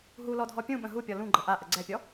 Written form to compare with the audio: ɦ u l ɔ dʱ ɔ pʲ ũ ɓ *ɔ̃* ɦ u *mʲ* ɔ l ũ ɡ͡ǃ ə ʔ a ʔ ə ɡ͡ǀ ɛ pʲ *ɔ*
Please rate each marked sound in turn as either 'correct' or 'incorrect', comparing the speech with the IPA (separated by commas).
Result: incorrect, incorrect, correct